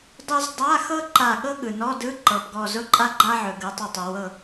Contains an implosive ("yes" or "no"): yes